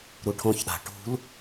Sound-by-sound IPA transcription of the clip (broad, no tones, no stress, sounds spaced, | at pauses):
ɾ u ʈʰ õ ç ɗ a̤ ʈ ṳ l